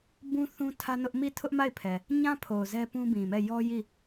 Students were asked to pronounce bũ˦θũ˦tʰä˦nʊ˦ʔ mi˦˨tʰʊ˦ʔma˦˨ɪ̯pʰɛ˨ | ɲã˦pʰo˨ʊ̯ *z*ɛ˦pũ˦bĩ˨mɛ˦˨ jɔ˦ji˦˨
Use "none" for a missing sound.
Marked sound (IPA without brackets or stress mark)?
z